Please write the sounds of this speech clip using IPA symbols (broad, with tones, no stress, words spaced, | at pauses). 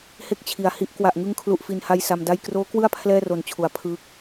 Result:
he˥˩k̚t͡ɕʰi˨˩a̯ hi˦˥ʔ kwa˨˩ʔŋɯ˧ŋkʰlu˨˩ʔfi˨˩n ha˧j sa˧mda˥˩j kroː˦˥kwɯ˥˩a̯ pʰlɛː˥˩ro˨˩nt͡ɕʰu˩˦a̯ pʰɯː˦˥k̚